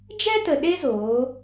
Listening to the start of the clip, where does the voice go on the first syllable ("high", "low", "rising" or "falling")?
high